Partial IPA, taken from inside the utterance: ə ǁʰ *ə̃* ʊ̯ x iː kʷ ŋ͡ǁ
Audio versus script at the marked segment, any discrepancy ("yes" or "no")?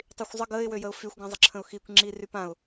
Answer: no